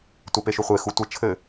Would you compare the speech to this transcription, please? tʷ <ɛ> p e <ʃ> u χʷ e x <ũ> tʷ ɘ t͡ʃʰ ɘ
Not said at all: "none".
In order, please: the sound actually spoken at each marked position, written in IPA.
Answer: ɛ, ʃ, u

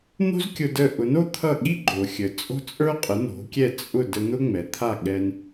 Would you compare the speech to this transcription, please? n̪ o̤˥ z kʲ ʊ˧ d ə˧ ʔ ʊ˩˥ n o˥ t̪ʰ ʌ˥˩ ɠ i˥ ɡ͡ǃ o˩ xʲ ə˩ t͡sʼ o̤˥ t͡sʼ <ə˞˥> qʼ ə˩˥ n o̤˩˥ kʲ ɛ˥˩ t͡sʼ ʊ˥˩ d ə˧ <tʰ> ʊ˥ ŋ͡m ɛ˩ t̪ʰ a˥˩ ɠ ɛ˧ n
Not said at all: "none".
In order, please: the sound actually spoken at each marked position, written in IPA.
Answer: ə˞˥, n̪

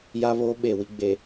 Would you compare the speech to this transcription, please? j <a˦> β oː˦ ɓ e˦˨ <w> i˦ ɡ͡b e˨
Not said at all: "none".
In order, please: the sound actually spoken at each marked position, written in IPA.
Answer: a˦, w

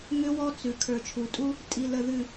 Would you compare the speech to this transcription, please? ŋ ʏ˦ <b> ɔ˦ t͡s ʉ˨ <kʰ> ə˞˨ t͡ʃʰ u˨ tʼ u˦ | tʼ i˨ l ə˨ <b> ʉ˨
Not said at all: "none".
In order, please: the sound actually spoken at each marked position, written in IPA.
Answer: w, kʰ, ð

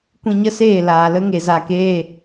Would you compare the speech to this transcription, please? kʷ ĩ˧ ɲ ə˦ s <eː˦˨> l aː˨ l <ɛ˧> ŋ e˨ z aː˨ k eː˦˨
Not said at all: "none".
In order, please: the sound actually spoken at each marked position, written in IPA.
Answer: eː˦˨, ə˧

